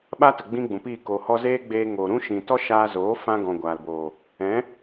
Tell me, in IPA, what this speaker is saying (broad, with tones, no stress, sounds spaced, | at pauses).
ɓ a˦ t ə˨ ɡ͡b ĩ˦ ɡ͡b ũ˨ p iː˦˨ k o˨ h ɔ˧ z eː˦ ɡ͡b eː˧ ŋ oː˨ ɾ ũ˦ ʃ ĩ˨ t ɔ˦ ʃ aː˧ z oː˨˦ f ã˦ ɡ ɔ̃˨ ɡʷ aː˨ l b oː˨ | ɛ̃˨˦